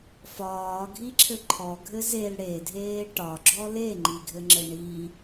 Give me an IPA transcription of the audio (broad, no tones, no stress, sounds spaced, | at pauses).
f ɒː ɡʱ i ǁʰ ɘ ǃʰ ɔ ɡʱ ɘ z e l ɽ e dʱ eː ʈ ɒ ɡ͡ǁ ɔ l e ŋ͡ǃ i ɡʱ ɘ ŋ͡ǁ ɘ ɳ i